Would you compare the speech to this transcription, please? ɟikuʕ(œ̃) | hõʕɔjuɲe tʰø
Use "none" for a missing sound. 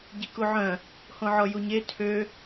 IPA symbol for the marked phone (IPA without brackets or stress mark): œ̃